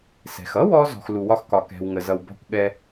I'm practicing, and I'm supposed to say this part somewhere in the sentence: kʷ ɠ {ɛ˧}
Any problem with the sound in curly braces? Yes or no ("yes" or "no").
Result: no